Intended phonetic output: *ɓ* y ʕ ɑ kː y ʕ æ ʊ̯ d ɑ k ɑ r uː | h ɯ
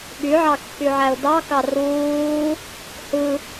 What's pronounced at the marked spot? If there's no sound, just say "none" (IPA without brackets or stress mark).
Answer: ɓ